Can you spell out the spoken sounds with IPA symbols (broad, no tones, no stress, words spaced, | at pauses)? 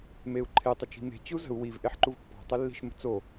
meu̯ǃʰe tˤət͡ʃi̤me̤ t͡ɕuzə̤u̯ wiv ʔeħǃuvpːɑ̤ tˤelːi̤ʃ mə̤t͡so